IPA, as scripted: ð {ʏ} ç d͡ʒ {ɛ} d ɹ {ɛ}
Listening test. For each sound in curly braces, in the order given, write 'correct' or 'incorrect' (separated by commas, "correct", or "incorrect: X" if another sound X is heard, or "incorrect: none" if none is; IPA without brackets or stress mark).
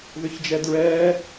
correct, correct, incorrect: ɛː